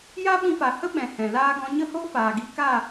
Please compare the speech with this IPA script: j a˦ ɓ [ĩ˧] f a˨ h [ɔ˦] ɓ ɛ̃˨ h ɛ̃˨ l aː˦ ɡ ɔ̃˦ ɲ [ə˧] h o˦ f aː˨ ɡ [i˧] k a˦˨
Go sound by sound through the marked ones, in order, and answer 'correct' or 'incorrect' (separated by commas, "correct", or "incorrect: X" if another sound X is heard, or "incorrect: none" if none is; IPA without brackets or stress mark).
correct, incorrect: ə˦, incorrect: ə˦, correct